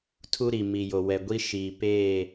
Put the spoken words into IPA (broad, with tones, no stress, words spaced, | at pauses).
tʰu˦ɾi˨ mi˨jo˨ wɛ˨ɡʷi˦ ʃiː˨ peː˦˨